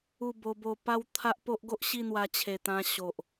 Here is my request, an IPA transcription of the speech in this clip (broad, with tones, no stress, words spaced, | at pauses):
u˥˧ bo˧bo˧pa˥˧wt̪ʰa˦ʔ po˦ʔɡo˦ʔ ɕi˥˧n̪wa˧t͡ɕʰe˨˩t̪ã˧ ɕo˨ʔ